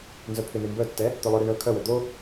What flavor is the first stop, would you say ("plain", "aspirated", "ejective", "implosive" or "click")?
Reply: aspirated